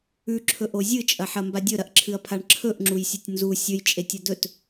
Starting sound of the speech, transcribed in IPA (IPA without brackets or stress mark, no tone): ʉ